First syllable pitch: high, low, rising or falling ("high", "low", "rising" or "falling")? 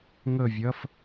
falling